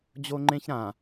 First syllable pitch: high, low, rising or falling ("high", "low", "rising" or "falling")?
high